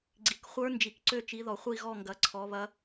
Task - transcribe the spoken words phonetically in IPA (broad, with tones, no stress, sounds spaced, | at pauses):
ɡ͡ǀ i˨ k χʷ ə˞˦˥ n d͡ʒ i˨ k ǀ ø˦˨ t͡ʃ i˨˦ ð ɔ˨ χʷ i˦˨ ɣ ɔ˦˨ ŋ ɡ ɐ˨˦ ǀʰ ɔ˨˦ β ɐ˦˥